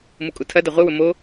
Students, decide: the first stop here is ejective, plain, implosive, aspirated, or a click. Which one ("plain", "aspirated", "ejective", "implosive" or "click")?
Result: ejective